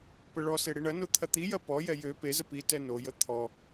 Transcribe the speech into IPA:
p ə ɭ ɔ s e ɽ i ɳ ɐ n o t̪ʰ ɐ t̪ i j ɐ p ɔ j ɛ j ø p e z ə p i t ɛ n o j ə t̪ʰ ɔ

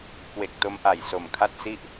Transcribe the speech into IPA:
k w e˨˩ k̚ t o˧ m ʔ a˨˩ j s o˨˩ m kʰ a˥˩ t̚ s i˥˩ ʔ

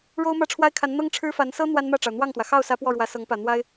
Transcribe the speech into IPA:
ɻ o˥ ʊ̯ m ä˥˩ ʈ͡ʂʰ w a˥ ɪ̯ kʰ a˧˥ n n̪ ɤ˥ ŋ ʈ͡ʂʰ ɻ̩˥ f a˧˥ n s ɤ˥ n̪ w a˥ n m ä˥˩ ʈ͡ʂ ɑ˩ ʊ̯ n̪ w ɑ˥˩ ŋ t̪ w ä˩ x ɑ˥˩ ʊ̯ s ä˧˥ p w ɔ˥˩ ɻ w ä˧˥ s ɤ˧˥ ŋ p ä˨˩ n̪ w a˥ ɪ̯

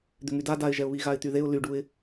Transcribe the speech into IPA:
d̪ ʏ ŋ y d a d a ɪ̯ ʒ ɛ ʊ̯ β i ɣ a ɪ̯ t̪ y ð e ʊ̯ l y ɖ u ɪ̯

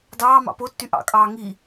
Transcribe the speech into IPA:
d ɑː m ɑ̰ p o tː y ʔ ɑ̰ kʼ ɑː ŋ i

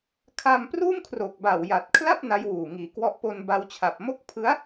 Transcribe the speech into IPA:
kʰ a˧ m p r uː˥˩ m kʰ r o˨˩ k̚ b a˨˩ w j a˨˩ t̚ kʰ l a˥˩ p̚ n a˦˥ j w uː˨˩ ŋ iː˨˩ k w ɔ˥˩ ʔ p o˧ n b a˧ w t͡ɕʰ a˨˩ p̚ m o˥˩ k̚ pʰ ɯ˦˥ a̯

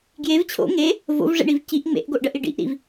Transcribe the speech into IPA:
ɡ j e v t͡ɕʰ o̰ ŋ e | v o̰ v ʐ ḛ ɳ i v c i ʔ ŋ͡m ḛ ʔ ɡ o ʔ ɖ ɜ ʔ i ɖ ḭ ʔ ɾ ḭ v

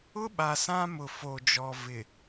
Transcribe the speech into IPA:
ʊ˦ ɓ a˨ s ã˦ m ʊ˨ f o˨ d͡ʒ ɔ˨ v ɪ˨

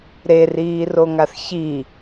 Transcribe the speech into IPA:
ɾ e r iː r o ŋ a θ ç i

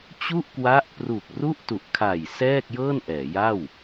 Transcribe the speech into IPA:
t͡ɕ u˥˩ ʔ k w a˦˥ ʔ p r u˨˩ k̚ r u˥˩ ʔ t u˨˩ ʔ kʰ a˨˩ j s ɛː˥˩ k̚ j ɤː˥˩ n ʔ ɛː˩˦ j a˥˩ w

